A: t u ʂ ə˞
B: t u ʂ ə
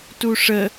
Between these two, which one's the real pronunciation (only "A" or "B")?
B